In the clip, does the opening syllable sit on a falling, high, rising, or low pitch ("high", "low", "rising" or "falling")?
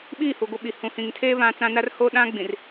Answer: falling